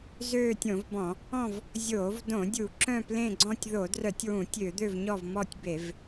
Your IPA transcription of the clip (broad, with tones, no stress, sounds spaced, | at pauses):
z øː˦˨ tʲ õ˧˩˧ v b ɔ̃˧˩˧ | ɔ̃˦˨ v | zʲ oː˧˩˧ v d õ˧˩˧ dʲ u˧˩˧ ǁ œ̃˦˨ p l ẽ˦˨ ɡ͡ǀ ɔ̃˦˨ tʲ ð o˧˩˧ d r œ˧˩˧ tʲ w ũ˧˩˧ tʲ ø˧˩˧ d̪ ø˦˨ v ɲ ɔ˦˨ v m ɔ˦˨ tʲ b e˧˩˧ v